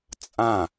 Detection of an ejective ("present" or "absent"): present